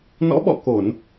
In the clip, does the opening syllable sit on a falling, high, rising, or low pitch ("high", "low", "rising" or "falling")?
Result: rising